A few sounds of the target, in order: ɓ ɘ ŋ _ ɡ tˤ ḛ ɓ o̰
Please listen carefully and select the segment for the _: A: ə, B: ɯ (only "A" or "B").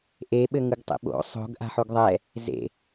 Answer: B